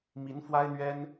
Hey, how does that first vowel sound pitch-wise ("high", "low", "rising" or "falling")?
rising